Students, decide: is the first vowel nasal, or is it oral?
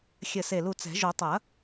oral